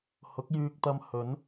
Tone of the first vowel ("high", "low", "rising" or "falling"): rising